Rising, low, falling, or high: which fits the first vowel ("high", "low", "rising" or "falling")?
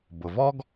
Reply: low